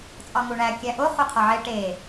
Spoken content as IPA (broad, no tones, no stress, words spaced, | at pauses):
t͡sʼɒŋuɳæ kʲæʔo χuqʰɒʕe ʈe